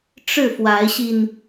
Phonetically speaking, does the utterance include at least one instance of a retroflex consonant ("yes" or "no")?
yes